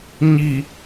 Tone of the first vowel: low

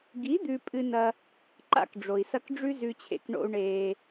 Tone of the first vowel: rising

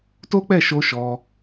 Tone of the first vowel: high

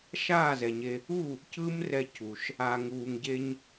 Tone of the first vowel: falling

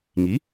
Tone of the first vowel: rising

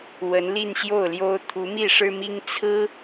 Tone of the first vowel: rising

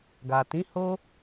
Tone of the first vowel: low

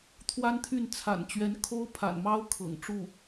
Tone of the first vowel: high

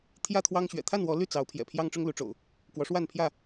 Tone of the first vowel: falling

